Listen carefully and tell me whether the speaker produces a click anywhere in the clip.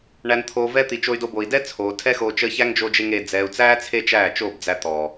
no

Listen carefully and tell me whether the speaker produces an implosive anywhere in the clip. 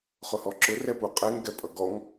no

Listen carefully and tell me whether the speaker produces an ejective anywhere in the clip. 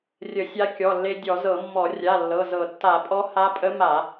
yes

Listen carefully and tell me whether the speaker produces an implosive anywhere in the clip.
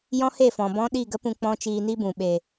yes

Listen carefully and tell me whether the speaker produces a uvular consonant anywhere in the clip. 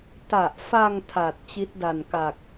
no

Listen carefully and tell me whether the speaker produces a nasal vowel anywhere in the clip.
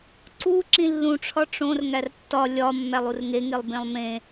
yes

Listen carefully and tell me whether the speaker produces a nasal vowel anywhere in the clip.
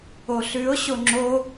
no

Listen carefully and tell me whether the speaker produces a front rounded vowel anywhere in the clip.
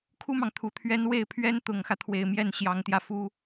no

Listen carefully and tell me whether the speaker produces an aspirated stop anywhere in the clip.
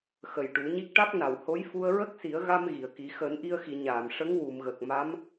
no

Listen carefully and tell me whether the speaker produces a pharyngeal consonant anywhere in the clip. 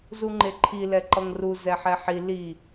yes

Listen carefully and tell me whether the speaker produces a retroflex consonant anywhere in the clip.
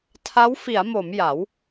no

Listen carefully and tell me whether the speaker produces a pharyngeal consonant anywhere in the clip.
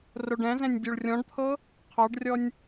no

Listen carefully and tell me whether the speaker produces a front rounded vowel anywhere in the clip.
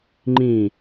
no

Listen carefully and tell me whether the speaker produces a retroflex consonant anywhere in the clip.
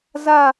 no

